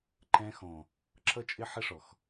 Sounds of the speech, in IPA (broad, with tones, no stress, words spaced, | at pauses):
ǃɛ̃˧xɔ̃˨ | ǁʌ˦t͡ʃʼɪ˦ħɪ˦ ʂɔ˨x